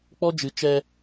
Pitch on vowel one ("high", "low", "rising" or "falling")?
high